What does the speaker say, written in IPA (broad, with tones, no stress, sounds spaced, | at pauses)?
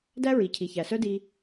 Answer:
d æ˥ ɹ i˩ cʰ i˩ ç æ˩ s œ˥ d i˧